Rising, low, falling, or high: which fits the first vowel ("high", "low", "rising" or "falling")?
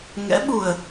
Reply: rising